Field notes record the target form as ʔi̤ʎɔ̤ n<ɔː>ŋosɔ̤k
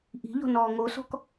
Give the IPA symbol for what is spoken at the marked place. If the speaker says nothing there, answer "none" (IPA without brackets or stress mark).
ɔː